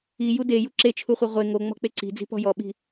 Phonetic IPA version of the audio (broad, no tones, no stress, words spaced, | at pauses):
i jude juǁe t͡ʃʰuχʷeʁʷe ŋo ŋ͡mɔ̤k͡peǀi̤d͡zi̤ pɔ̤jɔɓi̤